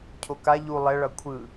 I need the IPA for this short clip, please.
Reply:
cʰ o k a ʎ u lˠ ɛ ɭ ʌ kʷʰ ɯ

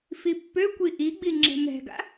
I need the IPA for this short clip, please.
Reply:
f i pː ø kʷ i ʔ i ɡ͡b i ŋ͡ǁ ɛ̤ m ɛ̤ ɡ a̰

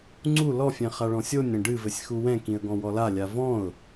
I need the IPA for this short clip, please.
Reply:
ŋ͡ǀ u l ɔ fʲ ɛ̃ χ a ɭ ɔ̃ sʲ o nʲ ɾ ɐ̃ ɖ ɨ v ɘ sʲ x u w ɛ̃ k ĩ ə̯ ɡ ɔ̃ w ɔ l a lʲ a v ɔ̃ ʊ̯

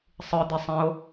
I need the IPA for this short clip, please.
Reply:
sˤ ɯ d̪ ɛ sˤ ɛ̃ o̯

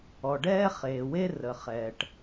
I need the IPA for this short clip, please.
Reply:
ɔ˩ ɖ ɛː˥ χ eː˩ w e˥ r ə˩ χ ɛː˩ ʈ

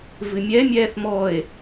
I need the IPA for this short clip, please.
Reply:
v ɨ mʲ ɛ mʲ ɛː θ m ɔ e̯

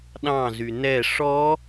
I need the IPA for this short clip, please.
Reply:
ɗ ɑ̃ z y n ɛ ʂ ɔ

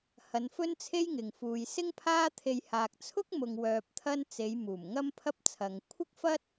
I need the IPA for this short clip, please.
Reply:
h ɐ˨˧ n f ɵ˥ n t͡sʰ e˥ j ŋ ɪ˨ ŋ f uː˨ j s ɪ˥ ŋ pʰ aː˥ t̪ʰ e˧ j h aː˨ k̚ t͡sʰ ʊ˥ k̚ m ʊ˧ ŋ w œː˧ p̚ t̪ʰ ɐ˥ n t͡s e˨˧ j m uː˨˩ m ŋ ɐ˥ m pʰ ɐ˥ p̚ t͡sʰ ɐ˨ ŋ kʷʰ ɪ˥ k̚ f ɐ˥ t̚

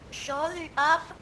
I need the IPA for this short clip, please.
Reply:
ʃ ɔ ð y ʔ a f

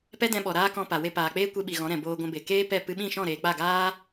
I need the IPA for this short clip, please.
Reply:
p ɛ˦ d ɛ̃˧ ɓ ɔ˨ ɾ aː˦ k ɔ̃˧ p a˨ w e˧ p aː˨ k͡p eː˦ kʷ e˧ ɓ i˨ ɣ ɔ̃˨˦ ɾ ɛ̃˨ b oː˧ ɡʷ ɛ̃˧ b e˨ k eː˦ p ɛ˦˨ p ɨ˧ ɓ ĩ˦˨ ʃ ɔ̃˦˨ ɾ eː˨ k͡p a˦˨ ɡ aː˦

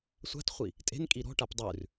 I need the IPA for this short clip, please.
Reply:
sʷ a̤ t χʷ i | tʼ e̤ n kʼ i ɾ ɔ̤ ʈ a p dˤ ʉ r

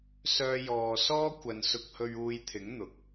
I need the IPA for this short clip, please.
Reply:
s œː˧ j ɔː˨ s ɔː˥ kʷ ɐ˨ n s ʊ˧ k̚ h ɵ˧ ɥ uː˧ j t̪ʰ ɪ˨˥ ŋ n̪ ʊ˨ k̚

